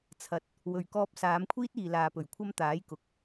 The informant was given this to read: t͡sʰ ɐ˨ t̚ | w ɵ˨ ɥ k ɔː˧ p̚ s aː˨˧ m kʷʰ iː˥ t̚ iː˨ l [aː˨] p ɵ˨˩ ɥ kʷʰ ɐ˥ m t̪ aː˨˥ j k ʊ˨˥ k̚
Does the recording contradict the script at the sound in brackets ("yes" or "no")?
no